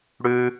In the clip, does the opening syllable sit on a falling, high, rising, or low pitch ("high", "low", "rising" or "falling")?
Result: high